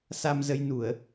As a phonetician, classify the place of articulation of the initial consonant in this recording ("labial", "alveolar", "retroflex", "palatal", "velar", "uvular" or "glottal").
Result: alveolar